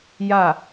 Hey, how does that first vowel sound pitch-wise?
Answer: falling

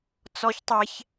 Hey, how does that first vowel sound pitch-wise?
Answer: high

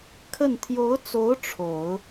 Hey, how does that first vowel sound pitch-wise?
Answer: falling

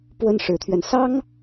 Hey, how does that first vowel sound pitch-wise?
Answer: high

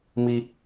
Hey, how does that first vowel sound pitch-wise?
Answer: high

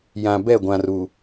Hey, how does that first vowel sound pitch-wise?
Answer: low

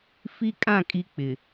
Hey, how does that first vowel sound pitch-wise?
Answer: high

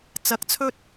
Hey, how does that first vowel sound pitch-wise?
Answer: rising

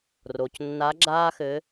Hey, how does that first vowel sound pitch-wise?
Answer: low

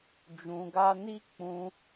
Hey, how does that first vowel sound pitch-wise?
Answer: low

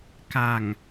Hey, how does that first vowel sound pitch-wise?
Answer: low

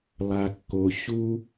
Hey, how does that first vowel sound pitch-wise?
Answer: low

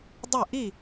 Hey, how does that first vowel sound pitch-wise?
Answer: falling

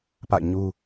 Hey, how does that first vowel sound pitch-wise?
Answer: falling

